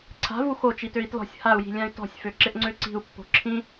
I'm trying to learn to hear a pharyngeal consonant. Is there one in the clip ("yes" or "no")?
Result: no